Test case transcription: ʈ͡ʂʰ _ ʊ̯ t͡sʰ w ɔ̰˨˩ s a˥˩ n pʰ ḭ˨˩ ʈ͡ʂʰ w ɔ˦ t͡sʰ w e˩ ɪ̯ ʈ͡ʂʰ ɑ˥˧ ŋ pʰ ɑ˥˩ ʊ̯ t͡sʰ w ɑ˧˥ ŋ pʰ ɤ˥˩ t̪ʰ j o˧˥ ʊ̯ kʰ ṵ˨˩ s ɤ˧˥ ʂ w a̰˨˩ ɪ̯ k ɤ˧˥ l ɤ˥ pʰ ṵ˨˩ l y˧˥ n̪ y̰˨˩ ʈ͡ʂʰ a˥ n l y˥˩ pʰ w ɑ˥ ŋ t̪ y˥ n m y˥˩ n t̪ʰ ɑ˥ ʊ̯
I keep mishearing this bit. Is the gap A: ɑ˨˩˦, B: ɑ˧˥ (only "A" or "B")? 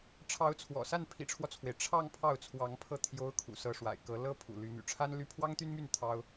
B